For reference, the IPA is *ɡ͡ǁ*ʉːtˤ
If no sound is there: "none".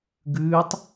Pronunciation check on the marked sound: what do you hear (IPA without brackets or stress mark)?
ɡ